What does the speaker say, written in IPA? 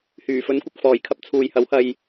h yː˨˩ f ɵ˨˥ n kʷ ɪ˨ k̚ f ɔː˨˩ j kʰ ɐ˧ p̚ t͡sʰ uː˨ j h ɐ˨˥ w h ɐ˧ j

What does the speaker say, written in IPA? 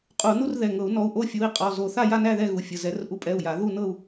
qʼ u˧˩˧ n u˥˧ r ð ɛ˩˧˩ ŋ ɤ˧˩˧ u̯ n ɔ˩˧˩ u̯ ʔ o˥˧ fʲ u˩˧˩ i̯ qʼ ɔ˩˧˩ z o˧˩˧ θ a˥˧ j a˥˧ n æ˥˧ ð ɛ˥˧ ɣ u˩˧˩ fʲ ə˩˧˩ z ɛ˧˩˧ r ʔ u˧˩˧ pʼ ɛ˩˧˩ u̯ j a˧˩˧ ð u˥˧ n ɤ˥˧ u̯

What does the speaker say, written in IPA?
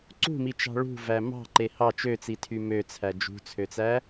ǀ ṳ m i t͡ʃ ɑ̤ ɭ ṳ v æ m ɑ̤ ǃ e h ɑ t͡ʃ ø t͡s i tʰ y m ø t͡sʰ æ d͡ʒ ṳ t͡sʰ ø t͡s æ

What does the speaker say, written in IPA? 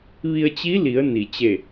ʋ i˧ ə̯ t͡ɕ i˧˥ l i˩˧ ə̯ n i˩ t͡ɕ e˧˩

